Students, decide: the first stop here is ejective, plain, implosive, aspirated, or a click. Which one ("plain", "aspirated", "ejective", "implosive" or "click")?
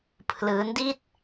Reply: aspirated